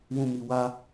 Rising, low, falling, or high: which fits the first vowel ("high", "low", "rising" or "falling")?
low